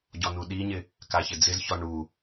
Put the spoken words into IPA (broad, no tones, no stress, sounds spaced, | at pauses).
ɟ ɔ n u ɗ i ɲ ɪ | k a ç ɪ d͡z ɪ z ç ɔ ɳ u